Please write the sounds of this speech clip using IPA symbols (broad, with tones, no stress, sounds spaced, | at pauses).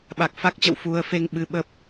ɓ a˨˩ k̚ f a˦˥ k̚ t͡ɕ ə̰˧˨ w f u˧ ə̯ f e˧ ŋ ɓ ɨ˧ ɓ ə˦˥ p̚